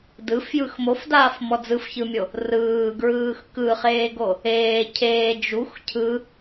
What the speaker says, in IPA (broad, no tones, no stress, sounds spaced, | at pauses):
d ɯ f j ɯ x m o f d aː f m ɔ d͡z ɯ f ç ɯ mʲ o | r ɯː ɡ ɹ ɯː x k ɯ χ eː ɡ o | eː cʰ eː d͡ʒ u x cʰ ɯ